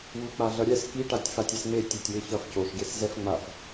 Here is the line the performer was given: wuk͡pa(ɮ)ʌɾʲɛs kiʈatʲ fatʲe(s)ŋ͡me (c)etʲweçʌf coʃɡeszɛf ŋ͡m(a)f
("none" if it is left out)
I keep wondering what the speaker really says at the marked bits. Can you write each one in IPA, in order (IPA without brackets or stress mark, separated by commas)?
ɮ, s, tʲ, a